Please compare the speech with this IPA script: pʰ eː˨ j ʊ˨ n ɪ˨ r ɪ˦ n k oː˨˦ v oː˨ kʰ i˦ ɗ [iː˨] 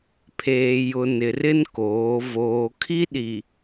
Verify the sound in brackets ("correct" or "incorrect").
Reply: incorrect